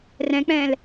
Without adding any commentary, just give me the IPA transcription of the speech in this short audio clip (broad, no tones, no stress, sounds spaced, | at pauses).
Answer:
r ɛ̃ k͡p ɛ̃ː l